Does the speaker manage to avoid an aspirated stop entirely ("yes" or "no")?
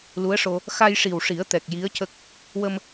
yes